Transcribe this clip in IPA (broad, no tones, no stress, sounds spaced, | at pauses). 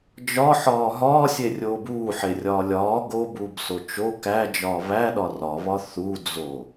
d͡ʒ ɒ ħ ɒː ɦ ɒː sʲ e rʲ oː b uː ħ e rʲ ɒː lʲ ɒː ɡ o b uː b s o t͡ʃ o k æ d͡ʒ ɒː β æ ɗ ɒ r ɒ β ɒ θ u d͡z o